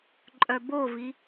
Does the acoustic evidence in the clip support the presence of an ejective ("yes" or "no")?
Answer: yes